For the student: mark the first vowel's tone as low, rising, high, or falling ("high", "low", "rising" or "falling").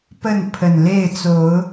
falling